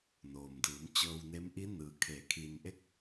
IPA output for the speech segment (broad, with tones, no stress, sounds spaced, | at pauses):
n oː˩ m d ɯː˩˧ m t͡ɕ ɤː˧ w n e˧˥ m ʔ i˧˥ n ɯː˩ kʰ eː˩˧ kʰ i˩ n ʔ e˧ k̚